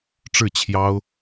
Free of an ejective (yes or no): yes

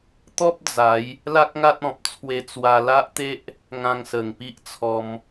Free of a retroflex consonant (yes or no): yes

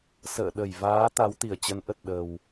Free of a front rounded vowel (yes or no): yes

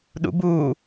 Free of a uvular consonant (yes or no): yes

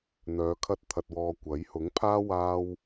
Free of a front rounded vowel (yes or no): no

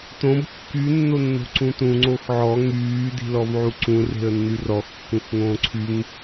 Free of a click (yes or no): no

